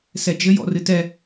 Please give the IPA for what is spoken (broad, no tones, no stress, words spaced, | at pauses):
sɛd͡ʒɘj ɔ̰rɨtɛ